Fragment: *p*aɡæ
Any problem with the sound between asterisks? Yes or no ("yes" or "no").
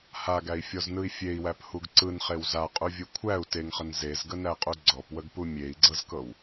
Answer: yes